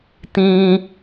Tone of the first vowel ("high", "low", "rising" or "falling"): high